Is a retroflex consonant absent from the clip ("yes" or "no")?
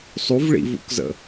no